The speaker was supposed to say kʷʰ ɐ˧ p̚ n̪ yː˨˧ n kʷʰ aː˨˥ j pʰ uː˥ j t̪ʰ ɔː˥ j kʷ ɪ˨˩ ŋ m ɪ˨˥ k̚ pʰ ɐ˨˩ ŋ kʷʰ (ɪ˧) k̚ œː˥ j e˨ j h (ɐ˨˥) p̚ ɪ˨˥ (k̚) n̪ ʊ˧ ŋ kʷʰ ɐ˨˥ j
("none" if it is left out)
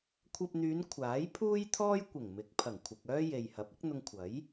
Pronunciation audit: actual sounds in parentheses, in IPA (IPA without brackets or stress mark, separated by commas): ɪ˨, ɐ˨˥, k̚